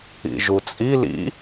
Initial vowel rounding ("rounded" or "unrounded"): unrounded